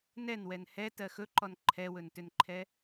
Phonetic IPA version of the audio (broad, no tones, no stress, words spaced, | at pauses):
nɛnwɛn hɛ tɜxɵǃɔn ǃʰɛwɵntʏnǃʰɛ